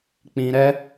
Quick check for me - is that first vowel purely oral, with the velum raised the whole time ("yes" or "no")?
no